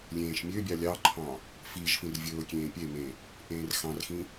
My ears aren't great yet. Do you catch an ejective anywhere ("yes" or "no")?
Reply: no